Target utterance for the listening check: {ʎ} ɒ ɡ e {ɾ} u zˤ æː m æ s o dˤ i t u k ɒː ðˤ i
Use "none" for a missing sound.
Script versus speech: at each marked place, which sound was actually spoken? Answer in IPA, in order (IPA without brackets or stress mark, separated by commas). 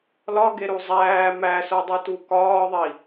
l, ɾ